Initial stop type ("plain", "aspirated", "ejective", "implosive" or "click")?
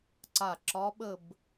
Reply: click